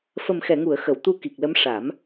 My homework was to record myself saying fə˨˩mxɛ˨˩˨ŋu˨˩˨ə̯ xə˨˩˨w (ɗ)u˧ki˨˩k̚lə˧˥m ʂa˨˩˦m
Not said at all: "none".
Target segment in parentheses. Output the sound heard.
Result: t̪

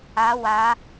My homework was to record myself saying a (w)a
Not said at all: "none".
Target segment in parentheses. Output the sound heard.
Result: w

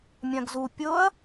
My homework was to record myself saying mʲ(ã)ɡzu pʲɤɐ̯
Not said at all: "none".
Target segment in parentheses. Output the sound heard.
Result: ã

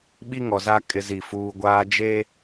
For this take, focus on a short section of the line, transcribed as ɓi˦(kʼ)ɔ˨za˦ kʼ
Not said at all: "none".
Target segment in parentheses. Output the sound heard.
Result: ŋ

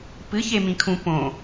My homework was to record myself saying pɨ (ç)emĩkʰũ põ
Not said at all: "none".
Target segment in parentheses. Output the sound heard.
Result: ç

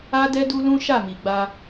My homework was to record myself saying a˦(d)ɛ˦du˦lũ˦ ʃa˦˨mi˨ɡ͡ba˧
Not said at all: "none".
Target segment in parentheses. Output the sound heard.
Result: d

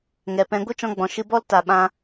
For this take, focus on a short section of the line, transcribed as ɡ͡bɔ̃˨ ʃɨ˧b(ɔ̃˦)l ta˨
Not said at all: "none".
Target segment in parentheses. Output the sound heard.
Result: ɔ˦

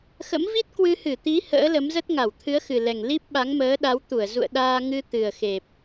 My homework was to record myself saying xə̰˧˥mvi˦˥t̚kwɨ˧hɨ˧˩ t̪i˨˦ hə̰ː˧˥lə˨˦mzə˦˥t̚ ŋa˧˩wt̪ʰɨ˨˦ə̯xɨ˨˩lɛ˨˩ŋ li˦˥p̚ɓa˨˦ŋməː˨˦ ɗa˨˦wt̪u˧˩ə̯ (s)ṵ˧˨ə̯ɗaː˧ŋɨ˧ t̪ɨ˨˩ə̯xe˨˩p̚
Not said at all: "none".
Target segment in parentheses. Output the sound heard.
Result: z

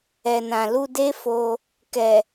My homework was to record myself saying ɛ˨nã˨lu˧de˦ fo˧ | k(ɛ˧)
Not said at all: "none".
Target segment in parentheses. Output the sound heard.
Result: ɛ˨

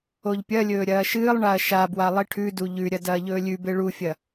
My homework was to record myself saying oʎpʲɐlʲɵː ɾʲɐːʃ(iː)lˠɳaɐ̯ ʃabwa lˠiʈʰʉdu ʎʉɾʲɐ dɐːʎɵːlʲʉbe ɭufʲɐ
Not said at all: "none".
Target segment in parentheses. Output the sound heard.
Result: ɨː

